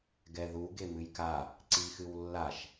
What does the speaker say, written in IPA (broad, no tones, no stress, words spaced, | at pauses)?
ɡɛðu ɡemɨjka | ǀixɨwlːaʃ